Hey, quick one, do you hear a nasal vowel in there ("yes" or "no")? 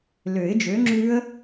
no